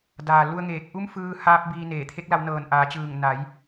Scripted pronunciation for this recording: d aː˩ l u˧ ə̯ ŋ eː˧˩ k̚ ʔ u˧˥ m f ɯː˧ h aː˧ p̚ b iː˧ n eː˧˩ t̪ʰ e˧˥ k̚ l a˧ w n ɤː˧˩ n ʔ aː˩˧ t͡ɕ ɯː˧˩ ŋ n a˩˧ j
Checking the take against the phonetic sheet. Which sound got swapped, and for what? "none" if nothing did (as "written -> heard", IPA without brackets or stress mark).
none